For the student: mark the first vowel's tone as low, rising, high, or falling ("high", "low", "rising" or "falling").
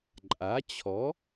rising